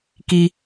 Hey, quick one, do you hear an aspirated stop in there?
no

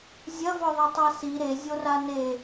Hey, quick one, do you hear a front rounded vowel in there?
no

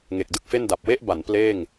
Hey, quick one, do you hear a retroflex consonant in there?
no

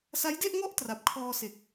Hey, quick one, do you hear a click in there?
no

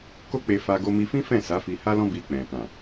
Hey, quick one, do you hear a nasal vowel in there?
yes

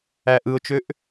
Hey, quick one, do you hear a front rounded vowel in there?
yes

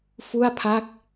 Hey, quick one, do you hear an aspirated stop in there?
yes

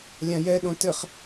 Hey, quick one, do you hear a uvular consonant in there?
yes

